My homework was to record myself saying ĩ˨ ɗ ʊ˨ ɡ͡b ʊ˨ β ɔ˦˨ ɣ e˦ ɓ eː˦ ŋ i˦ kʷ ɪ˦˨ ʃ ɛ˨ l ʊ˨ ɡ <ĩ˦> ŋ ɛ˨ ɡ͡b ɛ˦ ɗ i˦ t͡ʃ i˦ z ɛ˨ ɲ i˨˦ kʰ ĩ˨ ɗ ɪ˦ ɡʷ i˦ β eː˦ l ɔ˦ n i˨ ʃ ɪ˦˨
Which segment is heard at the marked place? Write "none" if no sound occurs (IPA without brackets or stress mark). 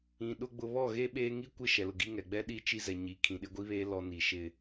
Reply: i˦